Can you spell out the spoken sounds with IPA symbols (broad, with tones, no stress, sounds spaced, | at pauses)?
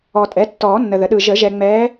ɔ˨ tʼ ɛ˩˥ tː ɔː˨˩˦ nː ə˨ ð ə˩˥ ɗ ɯ˨ ʒ ə˨˩˦ ʒ ɛ˨ ŋ͡m ɛː˧˥